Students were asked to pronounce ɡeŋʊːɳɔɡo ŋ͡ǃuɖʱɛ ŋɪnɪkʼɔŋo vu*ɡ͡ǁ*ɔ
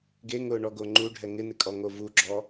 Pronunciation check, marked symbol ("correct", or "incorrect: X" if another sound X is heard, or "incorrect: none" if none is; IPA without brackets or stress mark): correct